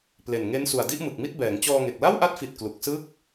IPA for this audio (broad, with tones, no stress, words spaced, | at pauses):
ple˨˩nŋe˦˥n su˨˩a̯di˥˩ʔmɯ˨˩k̚mi˥˩t̚ bɛː˩˦ŋt͡ɕɔː˧ŋe˨˩k̚ la˥˩wʔa˦˥t̚fi˨˩t̚ klu˨˩k̚sɯ˥˩k̚